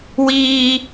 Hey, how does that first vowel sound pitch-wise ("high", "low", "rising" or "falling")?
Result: high